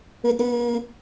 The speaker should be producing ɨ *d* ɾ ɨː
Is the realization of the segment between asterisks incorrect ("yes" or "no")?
no